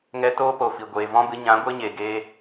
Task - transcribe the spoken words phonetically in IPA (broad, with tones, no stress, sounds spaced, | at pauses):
ŋ ɛ˧ t oː˦ p o˨ f i˨ ɡʷ eː˨ v ɔ̃˦ b ɨ˨˦ ɲ ã˨˦ ɡʷ e˦ ɲ e˨ ɡ eː˧